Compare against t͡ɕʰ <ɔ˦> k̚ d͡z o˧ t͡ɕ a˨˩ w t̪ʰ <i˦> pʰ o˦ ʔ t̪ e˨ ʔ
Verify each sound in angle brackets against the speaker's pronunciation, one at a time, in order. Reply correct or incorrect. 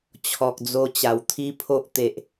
incorrect: ɔ˨, correct

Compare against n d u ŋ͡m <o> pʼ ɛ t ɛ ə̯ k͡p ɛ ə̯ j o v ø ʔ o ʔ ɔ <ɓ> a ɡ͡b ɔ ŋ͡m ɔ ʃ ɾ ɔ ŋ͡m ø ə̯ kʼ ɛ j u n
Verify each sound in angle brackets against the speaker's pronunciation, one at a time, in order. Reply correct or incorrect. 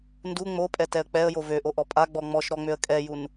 correct, incorrect: pʼ

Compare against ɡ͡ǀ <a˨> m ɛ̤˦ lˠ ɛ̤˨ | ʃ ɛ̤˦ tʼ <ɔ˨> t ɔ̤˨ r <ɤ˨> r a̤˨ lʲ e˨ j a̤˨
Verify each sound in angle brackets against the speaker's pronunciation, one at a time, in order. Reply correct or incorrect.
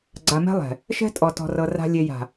correct, correct, correct

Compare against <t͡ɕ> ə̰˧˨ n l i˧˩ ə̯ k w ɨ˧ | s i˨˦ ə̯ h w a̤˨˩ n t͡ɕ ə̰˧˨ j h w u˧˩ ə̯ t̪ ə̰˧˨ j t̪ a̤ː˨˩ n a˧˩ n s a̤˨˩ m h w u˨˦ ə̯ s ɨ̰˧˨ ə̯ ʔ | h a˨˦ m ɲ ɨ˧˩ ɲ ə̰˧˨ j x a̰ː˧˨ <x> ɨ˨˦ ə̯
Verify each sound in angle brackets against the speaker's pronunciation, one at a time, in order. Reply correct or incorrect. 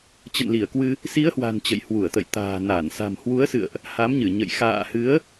correct, incorrect: h

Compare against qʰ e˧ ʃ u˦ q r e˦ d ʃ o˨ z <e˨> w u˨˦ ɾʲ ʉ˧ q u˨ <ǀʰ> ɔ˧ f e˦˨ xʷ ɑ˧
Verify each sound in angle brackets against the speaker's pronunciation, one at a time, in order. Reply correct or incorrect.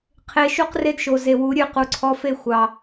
correct, correct

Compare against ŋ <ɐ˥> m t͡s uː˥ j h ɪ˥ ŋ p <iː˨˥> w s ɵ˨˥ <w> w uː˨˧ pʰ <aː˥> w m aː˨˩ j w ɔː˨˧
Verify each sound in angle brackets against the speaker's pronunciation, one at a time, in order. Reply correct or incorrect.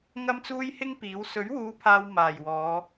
correct, correct, incorrect: ɥ, incorrect: aː˨

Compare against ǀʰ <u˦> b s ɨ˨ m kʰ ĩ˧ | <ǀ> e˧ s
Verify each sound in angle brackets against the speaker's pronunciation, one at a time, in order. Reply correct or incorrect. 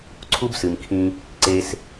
correct, correct

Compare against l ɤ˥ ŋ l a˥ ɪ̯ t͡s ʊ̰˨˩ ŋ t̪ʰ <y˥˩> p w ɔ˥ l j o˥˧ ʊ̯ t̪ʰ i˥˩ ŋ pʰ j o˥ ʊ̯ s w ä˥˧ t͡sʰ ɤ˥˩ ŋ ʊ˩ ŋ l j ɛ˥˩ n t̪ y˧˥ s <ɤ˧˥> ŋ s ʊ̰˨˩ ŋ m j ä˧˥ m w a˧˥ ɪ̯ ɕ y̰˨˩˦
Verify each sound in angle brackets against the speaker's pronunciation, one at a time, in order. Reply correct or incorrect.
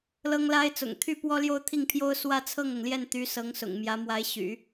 correct, correct

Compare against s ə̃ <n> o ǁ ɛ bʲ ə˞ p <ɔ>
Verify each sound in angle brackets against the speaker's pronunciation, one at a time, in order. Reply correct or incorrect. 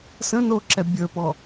correct, correct

